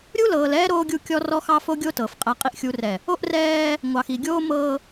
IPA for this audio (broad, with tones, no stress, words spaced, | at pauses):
ɾʲu˦lɤː˨l ɛː˦ ɾoː˦ɡʲu˦˨ kʲɔ˦rɔ˦xɑ˦fo˦ ɡʲo˦tɤ˨f qʼæ˨qʼi˨ʔxʲu˨rɛ˨ | o˦ʔrɛː˦ | ŋʷɑ˨xi˨ɡʲoː˦mɤː˦